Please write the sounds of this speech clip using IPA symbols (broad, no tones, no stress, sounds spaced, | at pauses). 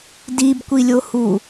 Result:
d i b kʷ i lʲ o h u